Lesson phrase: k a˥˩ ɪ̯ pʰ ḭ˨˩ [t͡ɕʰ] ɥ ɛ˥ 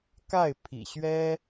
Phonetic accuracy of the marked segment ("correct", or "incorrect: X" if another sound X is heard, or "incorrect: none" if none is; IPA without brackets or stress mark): incorrect: ɕ